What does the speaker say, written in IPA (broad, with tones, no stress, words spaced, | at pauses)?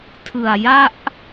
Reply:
tʰɯ˨˩a̯ja˥˩ʔ